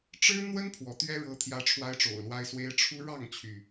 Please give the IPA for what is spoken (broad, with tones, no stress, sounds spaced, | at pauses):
ʈ͡ʂ ɻ̩˦ n̪ w ə˦ n pʰ w ɔ˨˦ t̪ ɥ ɛ˦ ɻ ɤ˦ t̪ʰ j ä˦ ʈ͡ʂʰ w a˦ ɪ̯ ʈ͡ʂ o̰˨˩ ʊ̯ l w a˦ ɪ̯ s w e˦ ɪ̯ ʈ͡ʂʰ u˦ ɻ ɑ˥˨ ŋ t͡ɕʰ y˩